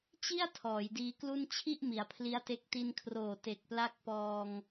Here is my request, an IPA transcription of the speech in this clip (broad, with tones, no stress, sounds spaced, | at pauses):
t͡ɕ i˥˩ a̯ tʰ ɔː˩˦ j d iː˧ k l u˥˩ n t͡ɕʰ i˥˩ ʔ m i˩˦ a̯ pʰ l i˦˥ a̯ t e˦˥ k̚ t i˧ n kʰ r oː˨˩ t e˨˩ k̚ p l a˦˥ k̚ p ɔː˧ ŋ